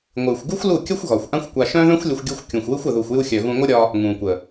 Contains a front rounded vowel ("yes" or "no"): yes